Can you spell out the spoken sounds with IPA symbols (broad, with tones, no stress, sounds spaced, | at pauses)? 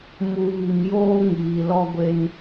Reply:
m u˨ β i˨ m j oː˦ ŋ iː˨ l ɔ˦ ɡʷ e˦ n